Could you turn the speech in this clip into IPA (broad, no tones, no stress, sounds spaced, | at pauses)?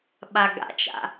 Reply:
ɓ a ɡ a̰ t͡ʃ a̰